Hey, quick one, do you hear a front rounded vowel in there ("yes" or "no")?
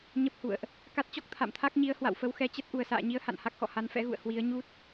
no